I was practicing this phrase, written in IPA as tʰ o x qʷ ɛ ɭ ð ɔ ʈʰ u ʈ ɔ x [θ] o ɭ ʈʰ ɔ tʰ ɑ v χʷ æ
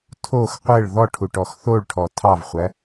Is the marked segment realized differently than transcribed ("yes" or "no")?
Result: no